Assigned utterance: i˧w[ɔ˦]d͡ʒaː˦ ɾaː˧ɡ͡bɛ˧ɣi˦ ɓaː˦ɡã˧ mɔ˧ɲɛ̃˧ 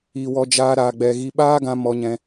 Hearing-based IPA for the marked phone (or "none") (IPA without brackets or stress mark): ɔ˦